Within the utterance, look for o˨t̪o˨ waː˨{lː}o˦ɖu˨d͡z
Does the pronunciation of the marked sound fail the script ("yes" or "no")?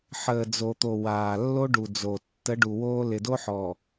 no